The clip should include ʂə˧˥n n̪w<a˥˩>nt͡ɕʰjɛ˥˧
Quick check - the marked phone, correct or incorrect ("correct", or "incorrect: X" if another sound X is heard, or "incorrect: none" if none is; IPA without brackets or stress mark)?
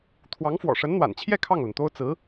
incorrect: a̰˨˩